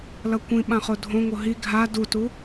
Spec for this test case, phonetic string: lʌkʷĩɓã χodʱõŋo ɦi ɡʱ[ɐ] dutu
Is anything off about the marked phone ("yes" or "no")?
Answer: yes